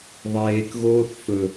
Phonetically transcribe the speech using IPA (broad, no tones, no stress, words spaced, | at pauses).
ðˤeːkɣoːθ fɵ